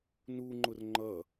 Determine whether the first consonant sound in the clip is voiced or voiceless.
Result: voiced